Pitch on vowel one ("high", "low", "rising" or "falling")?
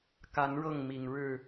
rising